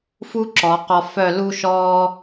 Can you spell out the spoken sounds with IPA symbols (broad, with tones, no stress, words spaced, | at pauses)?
fu˥ ǁɔ˩˧qɔ˧fœ˥˧ lu˧ʃɔː˧